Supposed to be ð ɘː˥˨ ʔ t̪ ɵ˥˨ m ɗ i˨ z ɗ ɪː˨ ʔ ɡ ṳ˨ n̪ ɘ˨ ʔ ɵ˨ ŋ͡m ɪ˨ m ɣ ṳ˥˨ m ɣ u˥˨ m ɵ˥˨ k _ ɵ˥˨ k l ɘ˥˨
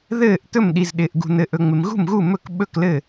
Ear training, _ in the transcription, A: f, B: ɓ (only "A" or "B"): B